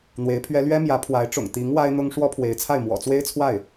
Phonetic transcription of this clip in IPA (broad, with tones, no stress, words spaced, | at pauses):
n̪we˧˥ɪ̯pʰɥɛ˥ lɥɛ˥mjä˧˥pʰwa˧˥ɪ̯ʈ͡ʂʊ̰˨˩ŋ t̪i˧˥ŋ wa˥ɪ̯n̪ʊ˥ŋ ʂwɔ˥pʰwe˧˥ɪ̯t͡sʰa˥˩ɪ̯ mwɔ̰˨˩t͡swe˥ɪ̯t͡sʰwa˥˩ɪ̯